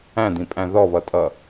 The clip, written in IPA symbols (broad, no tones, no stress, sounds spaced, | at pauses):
æ̃ d̪ ĩ pʼ æ̃ ð ɔ β ʌ tʼ ʌ